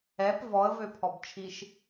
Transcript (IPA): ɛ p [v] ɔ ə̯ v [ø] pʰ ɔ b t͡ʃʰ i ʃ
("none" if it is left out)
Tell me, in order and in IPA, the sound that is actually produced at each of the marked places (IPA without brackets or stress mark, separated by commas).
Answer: v, ø